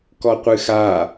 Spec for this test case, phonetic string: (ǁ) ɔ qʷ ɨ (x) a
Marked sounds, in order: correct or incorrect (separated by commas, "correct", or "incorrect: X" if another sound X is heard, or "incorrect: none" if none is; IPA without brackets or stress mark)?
incorrect: k, correct